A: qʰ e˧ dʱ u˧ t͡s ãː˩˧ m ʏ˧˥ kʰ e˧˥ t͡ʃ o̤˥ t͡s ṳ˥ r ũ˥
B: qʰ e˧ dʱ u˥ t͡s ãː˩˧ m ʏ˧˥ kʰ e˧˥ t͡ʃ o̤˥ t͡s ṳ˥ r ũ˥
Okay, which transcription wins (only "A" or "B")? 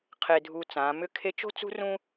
A